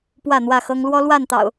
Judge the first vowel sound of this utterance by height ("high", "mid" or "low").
low